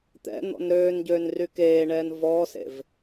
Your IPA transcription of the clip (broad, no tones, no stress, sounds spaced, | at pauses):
t̪ ɛ̰ n̪ ɔ̰ n ɾ øː n ɟ øː n r y k eː ɳ ɛː n v ɔː s ḛ v